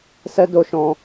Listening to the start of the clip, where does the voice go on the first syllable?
high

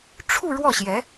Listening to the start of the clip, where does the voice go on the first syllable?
falling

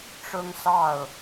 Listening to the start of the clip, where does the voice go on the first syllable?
high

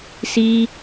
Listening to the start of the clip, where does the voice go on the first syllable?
high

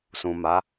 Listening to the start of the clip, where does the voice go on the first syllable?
low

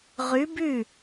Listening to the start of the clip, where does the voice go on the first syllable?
rising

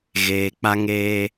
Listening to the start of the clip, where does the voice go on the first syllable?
low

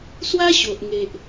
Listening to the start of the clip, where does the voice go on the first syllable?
high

